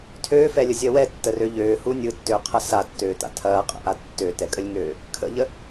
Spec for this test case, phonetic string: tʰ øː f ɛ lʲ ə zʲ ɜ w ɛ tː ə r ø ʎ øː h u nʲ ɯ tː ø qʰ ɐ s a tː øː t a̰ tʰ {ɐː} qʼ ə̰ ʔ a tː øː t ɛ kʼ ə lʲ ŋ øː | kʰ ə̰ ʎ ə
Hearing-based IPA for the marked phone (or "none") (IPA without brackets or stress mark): ɐː